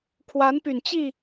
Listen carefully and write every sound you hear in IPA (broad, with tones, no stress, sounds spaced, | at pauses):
kʰ w a˧˥ n p y˨˩ n t͡ɕ i˥˩